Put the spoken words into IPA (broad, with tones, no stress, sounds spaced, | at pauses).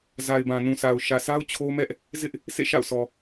z a˨ ɪ̯ b ã˨ n ũ˨ s a˨ ʊ̯ ʃ ä˨ s a˦ ʊ̯ t͡ɕʰ o˦ m ɛ˦ ʔ | z ɪ˦ ʔ | s ḛ˦˨ ʃ a̰˦˨ ʊ̯ sʰ ɔ˨